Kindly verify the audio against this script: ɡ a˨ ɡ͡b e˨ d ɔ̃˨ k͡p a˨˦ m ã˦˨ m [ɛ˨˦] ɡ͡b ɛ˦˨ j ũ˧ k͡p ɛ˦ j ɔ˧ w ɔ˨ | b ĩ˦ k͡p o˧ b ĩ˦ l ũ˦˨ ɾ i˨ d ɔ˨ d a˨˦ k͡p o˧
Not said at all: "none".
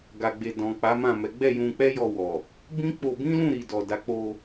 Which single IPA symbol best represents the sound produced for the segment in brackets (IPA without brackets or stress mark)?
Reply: ɛ˨˦